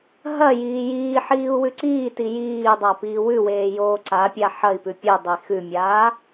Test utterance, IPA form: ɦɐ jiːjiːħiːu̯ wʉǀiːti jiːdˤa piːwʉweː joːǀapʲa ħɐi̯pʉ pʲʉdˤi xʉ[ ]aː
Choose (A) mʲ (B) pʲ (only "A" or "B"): A